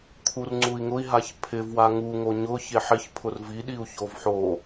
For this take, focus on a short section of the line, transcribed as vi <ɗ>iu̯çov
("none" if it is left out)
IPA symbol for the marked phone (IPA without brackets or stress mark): ɗ